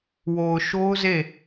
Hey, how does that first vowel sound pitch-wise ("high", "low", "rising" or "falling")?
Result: low